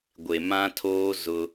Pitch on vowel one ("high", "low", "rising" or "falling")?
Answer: low